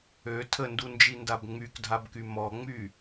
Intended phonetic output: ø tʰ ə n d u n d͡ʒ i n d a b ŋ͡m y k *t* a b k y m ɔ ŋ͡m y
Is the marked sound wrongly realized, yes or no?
yes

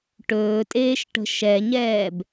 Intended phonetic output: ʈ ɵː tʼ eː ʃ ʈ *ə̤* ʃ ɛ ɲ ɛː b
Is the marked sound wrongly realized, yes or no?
no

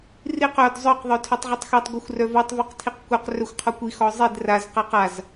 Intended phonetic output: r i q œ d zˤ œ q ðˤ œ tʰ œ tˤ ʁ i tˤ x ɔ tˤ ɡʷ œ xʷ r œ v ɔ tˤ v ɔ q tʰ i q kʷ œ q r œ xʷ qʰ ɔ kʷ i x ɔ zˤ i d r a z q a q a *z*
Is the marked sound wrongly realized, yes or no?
no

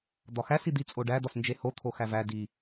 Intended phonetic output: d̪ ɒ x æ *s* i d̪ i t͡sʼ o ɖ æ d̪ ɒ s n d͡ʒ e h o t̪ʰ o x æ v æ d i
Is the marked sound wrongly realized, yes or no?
no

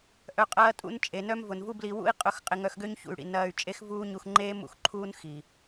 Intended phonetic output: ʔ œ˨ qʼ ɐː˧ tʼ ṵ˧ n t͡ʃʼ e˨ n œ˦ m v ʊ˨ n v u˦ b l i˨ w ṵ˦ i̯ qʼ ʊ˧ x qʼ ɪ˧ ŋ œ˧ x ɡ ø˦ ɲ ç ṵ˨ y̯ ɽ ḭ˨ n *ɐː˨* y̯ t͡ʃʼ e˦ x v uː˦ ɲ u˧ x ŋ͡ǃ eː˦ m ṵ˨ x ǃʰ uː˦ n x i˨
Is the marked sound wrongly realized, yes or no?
yes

